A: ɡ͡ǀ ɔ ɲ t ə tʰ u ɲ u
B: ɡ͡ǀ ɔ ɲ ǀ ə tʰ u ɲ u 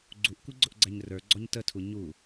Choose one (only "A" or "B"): A